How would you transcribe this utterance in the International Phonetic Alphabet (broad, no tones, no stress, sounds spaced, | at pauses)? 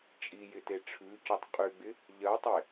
t͡ʃʼ i j ɪ t e ʈ͡ʂʰ ʉ c o tˤ qʼ y ɡ͡b ɪ | ʎ ɜ tˤ e